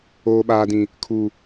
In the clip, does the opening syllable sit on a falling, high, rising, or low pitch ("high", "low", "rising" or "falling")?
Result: low